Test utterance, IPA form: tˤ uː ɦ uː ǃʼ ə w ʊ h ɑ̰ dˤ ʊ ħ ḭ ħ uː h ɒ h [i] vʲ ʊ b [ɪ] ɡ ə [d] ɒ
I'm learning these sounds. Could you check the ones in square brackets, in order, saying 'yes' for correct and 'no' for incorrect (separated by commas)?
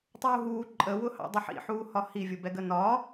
yes, no, no